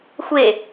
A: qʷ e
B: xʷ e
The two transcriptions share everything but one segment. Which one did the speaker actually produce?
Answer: B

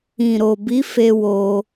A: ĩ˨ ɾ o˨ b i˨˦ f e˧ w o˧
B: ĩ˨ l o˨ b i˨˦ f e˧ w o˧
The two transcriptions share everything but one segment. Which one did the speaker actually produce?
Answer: A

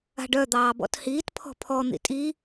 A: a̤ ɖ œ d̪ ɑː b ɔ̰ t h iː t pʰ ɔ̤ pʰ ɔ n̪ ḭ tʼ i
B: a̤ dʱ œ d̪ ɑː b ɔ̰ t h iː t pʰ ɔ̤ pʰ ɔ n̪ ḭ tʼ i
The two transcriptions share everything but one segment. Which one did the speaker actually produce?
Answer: A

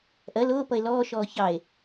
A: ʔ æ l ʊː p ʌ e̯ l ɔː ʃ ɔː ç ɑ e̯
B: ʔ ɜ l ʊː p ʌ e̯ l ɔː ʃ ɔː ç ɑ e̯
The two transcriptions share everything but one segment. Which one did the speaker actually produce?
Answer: B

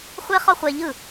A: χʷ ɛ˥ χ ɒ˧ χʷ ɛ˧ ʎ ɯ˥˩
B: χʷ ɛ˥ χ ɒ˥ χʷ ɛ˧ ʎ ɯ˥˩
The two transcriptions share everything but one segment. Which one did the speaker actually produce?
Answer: B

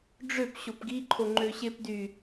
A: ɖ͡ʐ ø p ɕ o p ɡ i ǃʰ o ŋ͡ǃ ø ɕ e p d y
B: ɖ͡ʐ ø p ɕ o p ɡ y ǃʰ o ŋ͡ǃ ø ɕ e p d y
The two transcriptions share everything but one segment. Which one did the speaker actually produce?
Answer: A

